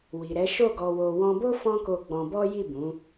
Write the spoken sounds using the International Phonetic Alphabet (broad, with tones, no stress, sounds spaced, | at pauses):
w i˨ ɾ ɛ˨˦ ʃ o˦˨ ɡ ɔ˧ w o˧ w ɔ̃˧ b o˦ f ɔ̃˦ k o˧ ɡ͡b ɔ̃˧ b ɔ˦ j i˦˨ b ũ˨˦